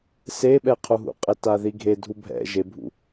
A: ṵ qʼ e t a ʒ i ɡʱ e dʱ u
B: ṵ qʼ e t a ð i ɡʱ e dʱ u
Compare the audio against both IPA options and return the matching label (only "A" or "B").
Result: B